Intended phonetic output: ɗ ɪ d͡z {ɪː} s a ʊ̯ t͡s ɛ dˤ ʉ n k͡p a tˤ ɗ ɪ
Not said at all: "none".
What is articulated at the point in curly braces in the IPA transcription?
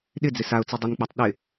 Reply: ɪ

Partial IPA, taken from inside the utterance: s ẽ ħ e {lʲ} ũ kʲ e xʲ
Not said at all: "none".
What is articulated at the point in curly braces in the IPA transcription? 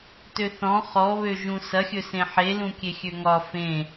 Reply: l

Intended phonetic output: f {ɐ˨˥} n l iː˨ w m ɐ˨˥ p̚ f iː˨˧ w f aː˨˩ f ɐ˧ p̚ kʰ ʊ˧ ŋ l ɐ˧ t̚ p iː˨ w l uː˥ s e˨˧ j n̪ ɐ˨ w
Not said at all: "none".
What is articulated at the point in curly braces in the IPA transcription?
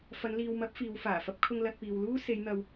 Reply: ɐ˨˧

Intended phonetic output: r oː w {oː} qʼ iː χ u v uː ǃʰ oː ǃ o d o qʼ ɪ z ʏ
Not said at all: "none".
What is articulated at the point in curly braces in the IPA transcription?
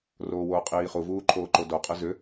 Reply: oː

